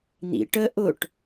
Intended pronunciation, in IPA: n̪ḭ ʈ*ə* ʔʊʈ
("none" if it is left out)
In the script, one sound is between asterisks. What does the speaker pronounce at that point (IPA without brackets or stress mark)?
ə